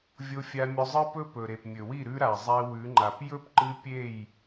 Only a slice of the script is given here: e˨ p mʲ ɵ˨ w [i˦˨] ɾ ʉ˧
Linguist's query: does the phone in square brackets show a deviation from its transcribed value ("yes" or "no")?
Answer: no